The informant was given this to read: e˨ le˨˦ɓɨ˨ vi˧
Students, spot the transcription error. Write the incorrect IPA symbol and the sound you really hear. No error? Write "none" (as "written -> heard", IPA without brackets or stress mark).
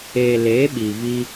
ɨ˨ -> i˨